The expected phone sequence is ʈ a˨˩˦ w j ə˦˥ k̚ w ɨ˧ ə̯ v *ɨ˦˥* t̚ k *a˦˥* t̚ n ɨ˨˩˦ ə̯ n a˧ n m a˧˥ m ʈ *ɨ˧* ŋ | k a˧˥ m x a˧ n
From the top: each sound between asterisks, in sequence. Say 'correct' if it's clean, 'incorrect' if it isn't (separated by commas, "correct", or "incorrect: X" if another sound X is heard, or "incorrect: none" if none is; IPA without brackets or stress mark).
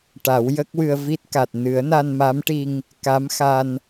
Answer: incorrect: i˦˥, incorrect: a˨˩, incorrect: i˧